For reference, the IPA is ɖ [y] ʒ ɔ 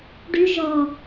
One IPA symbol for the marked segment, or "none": y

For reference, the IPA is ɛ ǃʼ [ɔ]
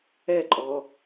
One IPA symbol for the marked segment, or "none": ɔ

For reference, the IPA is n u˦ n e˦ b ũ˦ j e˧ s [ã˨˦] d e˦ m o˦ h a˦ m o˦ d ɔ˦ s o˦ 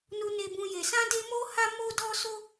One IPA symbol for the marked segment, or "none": ã˦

